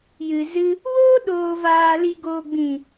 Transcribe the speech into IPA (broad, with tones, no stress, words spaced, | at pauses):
jɨ˨ zɨ˧ | woː˦ɗoː˨vaː˨li˨ ɡoː˨ɡ͡bĩ˨